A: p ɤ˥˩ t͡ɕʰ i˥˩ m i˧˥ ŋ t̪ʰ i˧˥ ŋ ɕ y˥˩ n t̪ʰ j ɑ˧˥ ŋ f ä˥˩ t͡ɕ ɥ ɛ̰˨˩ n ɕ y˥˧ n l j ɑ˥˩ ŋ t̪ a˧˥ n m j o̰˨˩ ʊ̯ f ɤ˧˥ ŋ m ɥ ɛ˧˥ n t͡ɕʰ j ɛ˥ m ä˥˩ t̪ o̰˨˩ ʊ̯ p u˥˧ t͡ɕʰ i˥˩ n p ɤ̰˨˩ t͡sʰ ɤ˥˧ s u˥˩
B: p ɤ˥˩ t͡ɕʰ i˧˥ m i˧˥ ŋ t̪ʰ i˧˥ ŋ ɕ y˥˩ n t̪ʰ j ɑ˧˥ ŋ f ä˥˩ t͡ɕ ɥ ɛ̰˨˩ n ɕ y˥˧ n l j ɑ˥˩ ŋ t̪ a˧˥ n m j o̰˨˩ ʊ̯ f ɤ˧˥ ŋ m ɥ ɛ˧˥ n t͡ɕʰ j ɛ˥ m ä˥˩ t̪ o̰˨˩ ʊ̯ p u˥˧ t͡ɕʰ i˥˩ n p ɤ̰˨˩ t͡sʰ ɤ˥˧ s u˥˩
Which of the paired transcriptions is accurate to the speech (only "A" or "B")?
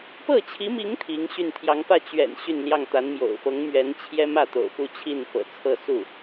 B